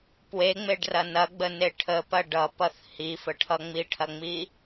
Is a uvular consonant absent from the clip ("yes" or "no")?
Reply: yes